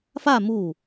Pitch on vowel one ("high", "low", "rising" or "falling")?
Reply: falling